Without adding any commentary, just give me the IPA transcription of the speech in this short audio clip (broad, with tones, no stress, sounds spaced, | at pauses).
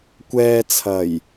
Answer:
kʷ ɛː˧ t͡sʰ ɐ˨˩ j